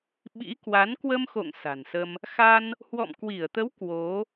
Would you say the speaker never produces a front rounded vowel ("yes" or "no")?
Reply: yes